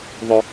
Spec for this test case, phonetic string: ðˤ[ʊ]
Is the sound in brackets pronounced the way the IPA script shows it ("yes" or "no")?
no